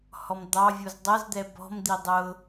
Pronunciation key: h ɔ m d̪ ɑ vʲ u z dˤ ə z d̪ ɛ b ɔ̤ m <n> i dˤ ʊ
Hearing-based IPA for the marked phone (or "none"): d̪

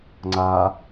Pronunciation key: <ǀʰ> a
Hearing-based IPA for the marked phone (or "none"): ŋ͡ǀ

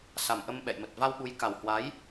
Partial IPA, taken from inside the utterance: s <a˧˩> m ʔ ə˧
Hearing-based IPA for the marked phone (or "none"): a˨˩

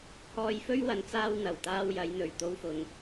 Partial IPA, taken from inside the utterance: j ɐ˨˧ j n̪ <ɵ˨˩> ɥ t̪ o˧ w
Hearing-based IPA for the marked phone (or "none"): ɵ˨˩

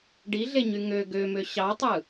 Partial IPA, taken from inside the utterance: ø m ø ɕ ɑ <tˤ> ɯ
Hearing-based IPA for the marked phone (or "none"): tˤ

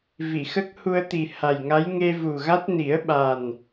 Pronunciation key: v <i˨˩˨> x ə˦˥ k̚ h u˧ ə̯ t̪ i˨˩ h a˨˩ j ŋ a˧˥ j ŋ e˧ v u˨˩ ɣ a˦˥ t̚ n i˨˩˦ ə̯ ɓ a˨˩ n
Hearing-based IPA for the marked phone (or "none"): i˨˩˨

